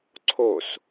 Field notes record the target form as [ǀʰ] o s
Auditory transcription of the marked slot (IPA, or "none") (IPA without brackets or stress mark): ǀʰ